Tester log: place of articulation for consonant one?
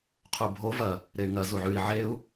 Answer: uvular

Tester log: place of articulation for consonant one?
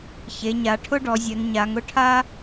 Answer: palatal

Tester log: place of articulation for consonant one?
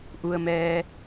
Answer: glottal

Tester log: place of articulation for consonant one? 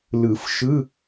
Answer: alveolar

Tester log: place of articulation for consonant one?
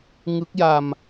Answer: velar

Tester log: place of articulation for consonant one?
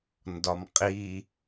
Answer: alveolar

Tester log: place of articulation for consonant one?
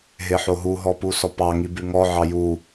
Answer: glottal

